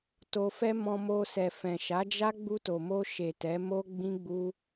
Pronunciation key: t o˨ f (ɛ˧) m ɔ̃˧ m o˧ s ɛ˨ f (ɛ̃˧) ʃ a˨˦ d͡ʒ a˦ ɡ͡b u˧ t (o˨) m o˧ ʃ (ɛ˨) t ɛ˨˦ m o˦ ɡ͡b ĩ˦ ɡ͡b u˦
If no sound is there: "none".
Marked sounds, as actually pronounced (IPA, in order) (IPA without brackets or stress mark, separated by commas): ɛ˧, ɛ̃˨, o˨, e˨